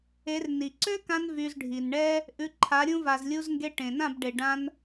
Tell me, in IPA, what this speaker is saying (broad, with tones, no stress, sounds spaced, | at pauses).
e˨˦ r n i˨ ǀ ø˦ k ã˧ n v y˧ z ɖʱ i˨ n ɳ ɛ˦ | ʔ ʉ˨˦ ǃʰ a˨˦ ɾʲ ũ˧ v a˨ z lʲ u˧ z ŋ ɡ e˧ ʈ ẽ˨ n ã˦˨ b ɖ e˨ ɖ ã˧ n